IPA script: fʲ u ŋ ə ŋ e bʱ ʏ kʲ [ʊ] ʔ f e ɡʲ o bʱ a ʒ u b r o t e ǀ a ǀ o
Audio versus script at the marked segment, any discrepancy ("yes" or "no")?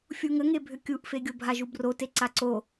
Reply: yes